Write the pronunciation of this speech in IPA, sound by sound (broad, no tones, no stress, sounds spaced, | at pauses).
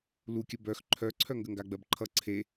l u kʲ ə b œ x ǃʰ œ ǀʰ œ ŋ ɡ ə ŋ ɡ a ɡ͡b ɜ b ǃʰ ʌ ǀʰ e